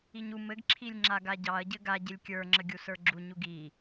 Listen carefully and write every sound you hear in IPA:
i ɲ u m ɘ ɡ ǁʰ i lʲ ŋ͡ǁ a ɡ a ɟ ɑ ɐ̯ ɟ ɘ ɡ a ɟ ɪ lʲ kʲ ə˞ ŋ͡ǁ ə ɡʲ u s ə˞ ɡ͡ǁ u ɲ u ɡ i

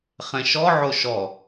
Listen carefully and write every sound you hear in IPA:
χ ɛ̃ ʃ ɔ ʕ o ʃ ɔ

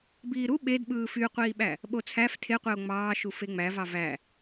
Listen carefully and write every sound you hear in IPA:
b iː ɾ u ɓ e d ɓ ɯː f y qʷ iː ɓ æ | ɓ o t͡sʰ æ f tʰ e qʷ e o̯ ŋ͡m ɑː ʃ u f e ŋ͡m æ v ɑ v æ

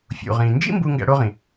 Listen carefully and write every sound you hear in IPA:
fʲ ṵ˨ ʁ ĩ˨ n d͡ʒ ḭ˥ m b u˥ ŋ ɡ æ̰˦ ɽ o˥ ʁ ĩ˩

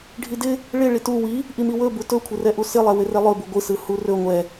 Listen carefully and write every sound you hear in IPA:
ɖʱ i d ɪ | ɭ ɪ ɭ i t u w i | ʔ i m i w ɵ b u t ɵ kʷʰ ɪ r ɛ ʔ u s ɪ lˠ ɛ w ɪ r ɛ lˠ ɵ b u ɡʷ ɯ s ɯ h u r ɵ ŋʷ ɛ

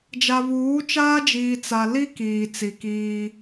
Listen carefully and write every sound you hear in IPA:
d͡ʒ a˨ β uː˨˦ t͡ʃ aː˦ d͡ʒ iː˨ t͡s a˨ l i˦ k iː˨ t͡s i˨ k iː˦

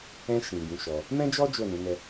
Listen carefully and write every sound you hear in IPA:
ɛ̃˧ ʃ ĩ˨ ɡ ũ˨˦ ʃ ɔ˧ | m ɛ̃˦ d͡ʒ ɔ˦ d͡ʒ o˦˨ n ũ˨˦ n ɛ˧

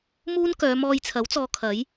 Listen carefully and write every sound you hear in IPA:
m uː˥ n k œː˨˧ m ɔː˧ j t͡sʰ ɐ˨˥ w t͡s ɔː˨˧ kʰ ɐ˨˥ j

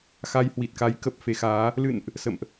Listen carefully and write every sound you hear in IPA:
x a˧ j h w i˨˩ t̚ k a˨˦ j k ə˨˩ p̚ f e˧ x aː˨˦ | l ɨ̰˧˨ n ʔ | s ə̰˧˨ m ʔ

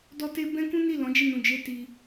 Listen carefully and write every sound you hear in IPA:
d ɔ˧ t e˧ b ɛ̃˦ k ũ˦ n i˦˨ l ɔ̃˨˦ d͡ʒ i˦˨ n ũ˧ d͡ʒ e˦ t i˧

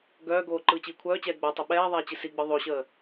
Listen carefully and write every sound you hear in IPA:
ɡ œː ɡ oː ǃ ɯː t͡ɕ iː kʷʰ œː t͡ɕ ɛː ɡ͡b ɛ tˤ ə ɓ ɛː ðˤ ɛː t͡ɕ i s i ɡ͡b ɯ ðˤ o ɕ əː

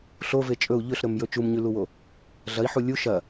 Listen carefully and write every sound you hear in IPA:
ɬ o v e t͡ʃʼ ɵ u̯ ʎ ɵ ɬ ɾ ɵ m j ɵ t͡ʃ u m ɲ ʉ l u w o | ɮ ɐ i̯ ħ u lʲ u ʃ ɐ

